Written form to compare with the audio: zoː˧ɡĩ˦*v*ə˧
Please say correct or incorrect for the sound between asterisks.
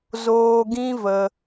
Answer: correct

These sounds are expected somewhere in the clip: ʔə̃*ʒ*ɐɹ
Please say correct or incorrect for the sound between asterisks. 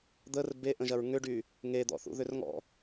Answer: correct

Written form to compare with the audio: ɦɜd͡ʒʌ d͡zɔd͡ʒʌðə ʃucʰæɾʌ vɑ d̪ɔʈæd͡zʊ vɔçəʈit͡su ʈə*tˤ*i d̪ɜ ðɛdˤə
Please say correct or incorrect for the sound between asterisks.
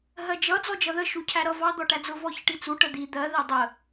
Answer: incorrect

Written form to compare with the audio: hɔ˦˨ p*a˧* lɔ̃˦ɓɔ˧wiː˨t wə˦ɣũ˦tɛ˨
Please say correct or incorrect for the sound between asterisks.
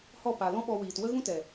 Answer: incorrect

